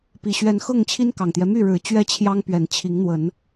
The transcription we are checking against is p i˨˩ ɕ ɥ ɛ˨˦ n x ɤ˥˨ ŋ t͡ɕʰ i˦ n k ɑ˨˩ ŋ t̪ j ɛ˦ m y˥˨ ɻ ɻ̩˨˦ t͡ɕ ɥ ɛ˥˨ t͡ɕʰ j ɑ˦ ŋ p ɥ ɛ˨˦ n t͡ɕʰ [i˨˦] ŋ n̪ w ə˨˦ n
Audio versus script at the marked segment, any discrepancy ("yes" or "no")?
no